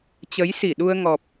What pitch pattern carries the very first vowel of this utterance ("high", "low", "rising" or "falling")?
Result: rising